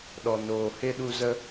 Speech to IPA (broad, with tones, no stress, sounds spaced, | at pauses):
ɗ ɔ˨ n oː˨ h e˦ ɗ u˧ z ə˧